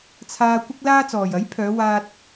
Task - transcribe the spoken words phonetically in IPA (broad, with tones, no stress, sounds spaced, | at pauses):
t͡sʰ aː˧ kʷ ɪ˥ k̚ l aː˥ t͡s ɔː˨ j ɐ˨˥ j pʰ œː˨˧ w aː˧ t̚